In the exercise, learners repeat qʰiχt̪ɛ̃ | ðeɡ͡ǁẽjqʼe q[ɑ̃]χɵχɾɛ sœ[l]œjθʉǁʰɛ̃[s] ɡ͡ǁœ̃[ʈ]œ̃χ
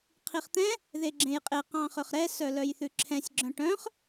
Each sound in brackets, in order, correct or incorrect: correct, correct, incorrect: sʲ, correct

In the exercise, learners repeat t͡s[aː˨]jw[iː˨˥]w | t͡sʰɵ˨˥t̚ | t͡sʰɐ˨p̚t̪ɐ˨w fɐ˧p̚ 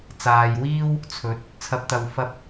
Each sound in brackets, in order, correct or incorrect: correct, incorrect: iː˥

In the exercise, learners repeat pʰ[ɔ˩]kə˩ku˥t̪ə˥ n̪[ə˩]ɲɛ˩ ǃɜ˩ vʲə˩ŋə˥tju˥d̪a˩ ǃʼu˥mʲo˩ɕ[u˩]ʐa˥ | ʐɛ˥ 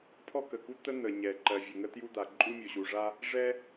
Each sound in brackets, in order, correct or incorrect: incorrect: ɔ˥, correct, correct

